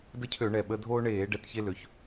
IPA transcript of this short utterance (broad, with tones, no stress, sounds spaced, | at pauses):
d ə˦ cʰ ø˧˩˧ ɳ ɛ˨˩ ɓ ə˦ dʱ oː˦ ɳ eː˧˩˧ ɖ ɛ˨˦ t ç e˦ l ø˨˦ ç